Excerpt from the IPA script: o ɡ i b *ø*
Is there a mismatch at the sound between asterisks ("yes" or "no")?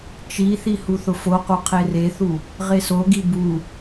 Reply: yes